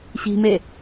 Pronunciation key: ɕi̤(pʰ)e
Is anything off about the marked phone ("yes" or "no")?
yes